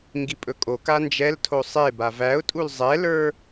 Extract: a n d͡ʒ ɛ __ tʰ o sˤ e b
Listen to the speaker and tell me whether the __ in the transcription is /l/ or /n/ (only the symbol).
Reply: l